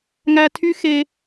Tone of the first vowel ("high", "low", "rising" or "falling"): high